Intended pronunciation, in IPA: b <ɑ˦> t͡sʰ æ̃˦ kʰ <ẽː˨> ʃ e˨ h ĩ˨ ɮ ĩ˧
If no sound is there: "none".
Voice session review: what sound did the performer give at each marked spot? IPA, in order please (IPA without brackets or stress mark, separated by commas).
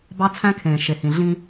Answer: ɑ˦, ẽː˨